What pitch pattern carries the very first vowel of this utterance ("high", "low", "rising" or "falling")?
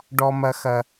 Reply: low